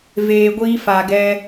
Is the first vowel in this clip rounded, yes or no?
no